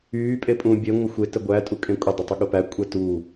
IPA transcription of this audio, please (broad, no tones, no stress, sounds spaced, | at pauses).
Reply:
yː pʼ e pʼ ũː bʲ e ŋʷ ə xʷ e t ə ɡʷ æ tʼ u kʼ ẽ kʷʼ ɪ dˤ ə tˤ ɪ ɠ ʊ p æ kʷʼ ɛ t u